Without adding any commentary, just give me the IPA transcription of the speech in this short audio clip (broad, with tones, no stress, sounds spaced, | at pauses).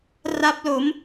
r a˦˥ p̚ l o˩˦ m